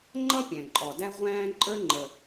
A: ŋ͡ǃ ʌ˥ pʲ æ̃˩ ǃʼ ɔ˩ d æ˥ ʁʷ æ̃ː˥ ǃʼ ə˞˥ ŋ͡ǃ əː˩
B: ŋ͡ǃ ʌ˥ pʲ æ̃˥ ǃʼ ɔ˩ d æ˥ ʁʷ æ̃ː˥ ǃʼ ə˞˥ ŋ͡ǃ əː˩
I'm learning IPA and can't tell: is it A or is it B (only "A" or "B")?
A